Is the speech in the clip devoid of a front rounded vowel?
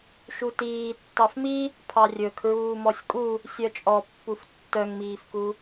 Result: no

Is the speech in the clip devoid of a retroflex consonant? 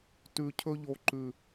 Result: yes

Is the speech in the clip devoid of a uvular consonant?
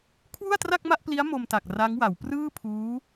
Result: yes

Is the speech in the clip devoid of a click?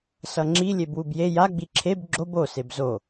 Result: no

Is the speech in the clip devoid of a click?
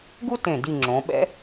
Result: no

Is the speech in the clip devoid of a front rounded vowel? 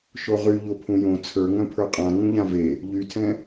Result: no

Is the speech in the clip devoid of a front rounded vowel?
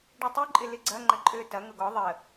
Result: no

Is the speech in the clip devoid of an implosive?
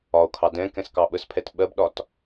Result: no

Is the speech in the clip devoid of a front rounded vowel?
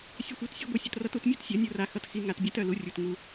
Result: no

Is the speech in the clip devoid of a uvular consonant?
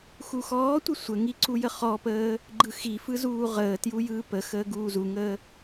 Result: no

